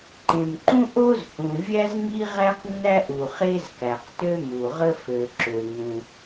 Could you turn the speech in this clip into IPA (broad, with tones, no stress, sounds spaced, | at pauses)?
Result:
ǃ ẽ˩ m ǃ ũ˥ ʔ o˥ z h ũ˩ vʲ æ˥ z ŋ i˥ ʁ æ˥ q nː æ˥ ʔ u˩ χ e˥ z k æ˩ q t ø˥ m u˩ ʁ ə˥ f ø˩ ǁ ø˩ ŋ ũ˩